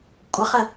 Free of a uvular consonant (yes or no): no